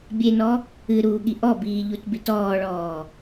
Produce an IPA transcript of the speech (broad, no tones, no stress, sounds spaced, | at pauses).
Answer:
bʲ e n ɔ | ɨ ɾ uː ɠ i ʔ ɔ b iː ʎ u t b i t ɔː ɭ ɔː